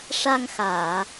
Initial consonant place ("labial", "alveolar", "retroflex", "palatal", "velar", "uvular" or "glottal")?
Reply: retroflex